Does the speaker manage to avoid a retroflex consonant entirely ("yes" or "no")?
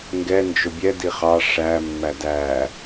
no